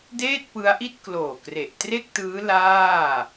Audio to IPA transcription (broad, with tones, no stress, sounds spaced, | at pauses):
d eː˥˩ t̚ p ɯ˦˥ a̯ ʔ i˥˩ t̚ k l oː˨˩ k r e˨˩ ʔ t r e˥˩ k̚ t ɯː˦˥ l aː˥˩